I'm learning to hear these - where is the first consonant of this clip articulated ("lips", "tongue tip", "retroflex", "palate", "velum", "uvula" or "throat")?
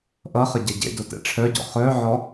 throat